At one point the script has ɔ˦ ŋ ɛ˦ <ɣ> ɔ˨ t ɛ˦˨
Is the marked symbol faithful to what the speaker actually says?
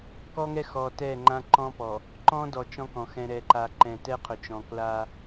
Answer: no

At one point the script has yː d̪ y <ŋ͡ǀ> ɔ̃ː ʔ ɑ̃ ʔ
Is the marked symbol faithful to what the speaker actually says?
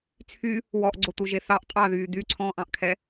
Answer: no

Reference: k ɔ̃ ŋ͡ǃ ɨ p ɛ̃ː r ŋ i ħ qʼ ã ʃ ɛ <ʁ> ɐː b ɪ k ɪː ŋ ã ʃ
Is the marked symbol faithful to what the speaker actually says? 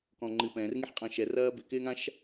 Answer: no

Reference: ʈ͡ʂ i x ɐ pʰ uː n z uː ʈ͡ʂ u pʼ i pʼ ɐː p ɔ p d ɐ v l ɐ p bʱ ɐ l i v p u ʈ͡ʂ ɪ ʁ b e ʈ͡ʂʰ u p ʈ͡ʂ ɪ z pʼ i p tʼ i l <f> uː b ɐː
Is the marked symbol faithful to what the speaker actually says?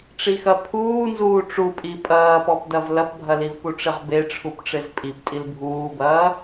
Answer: no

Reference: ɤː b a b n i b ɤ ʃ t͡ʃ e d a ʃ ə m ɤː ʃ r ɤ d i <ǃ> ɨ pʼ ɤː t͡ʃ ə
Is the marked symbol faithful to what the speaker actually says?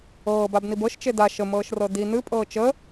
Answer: no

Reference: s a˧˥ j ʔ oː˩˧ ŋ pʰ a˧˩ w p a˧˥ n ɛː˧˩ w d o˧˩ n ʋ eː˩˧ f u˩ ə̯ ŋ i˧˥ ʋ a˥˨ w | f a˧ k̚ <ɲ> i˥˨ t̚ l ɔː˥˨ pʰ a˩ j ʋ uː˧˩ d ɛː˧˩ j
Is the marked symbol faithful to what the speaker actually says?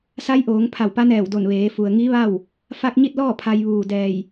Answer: yes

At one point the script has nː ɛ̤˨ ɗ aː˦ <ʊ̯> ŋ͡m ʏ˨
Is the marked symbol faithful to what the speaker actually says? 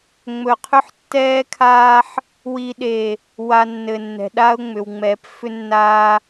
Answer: yes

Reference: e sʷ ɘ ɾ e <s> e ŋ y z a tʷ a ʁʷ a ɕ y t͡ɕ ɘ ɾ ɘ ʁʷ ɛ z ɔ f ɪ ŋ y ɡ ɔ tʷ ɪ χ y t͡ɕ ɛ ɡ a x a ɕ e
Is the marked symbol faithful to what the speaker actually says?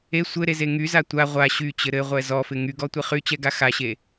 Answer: no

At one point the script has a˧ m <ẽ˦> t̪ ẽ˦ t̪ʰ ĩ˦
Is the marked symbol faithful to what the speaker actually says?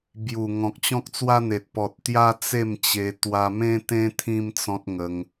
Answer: yes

